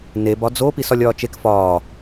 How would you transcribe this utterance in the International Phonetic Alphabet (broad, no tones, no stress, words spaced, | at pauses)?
neb ɒd͡zo pisɒlʲɒːt͡ʃek fɒː